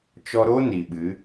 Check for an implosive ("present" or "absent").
present